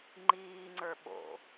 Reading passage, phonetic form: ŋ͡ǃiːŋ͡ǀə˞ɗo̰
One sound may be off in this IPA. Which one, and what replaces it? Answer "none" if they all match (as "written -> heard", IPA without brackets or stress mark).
ɗ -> ɓ